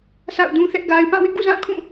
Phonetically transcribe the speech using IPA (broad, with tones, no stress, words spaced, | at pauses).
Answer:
sʰa̰˦˨ʊ̯dũ˦θɛ˦ʔɡa˦ɪ̯ pã˦˨ wɪ˦ʔɡṵ˦˨zã˦˨kʰũ˦˨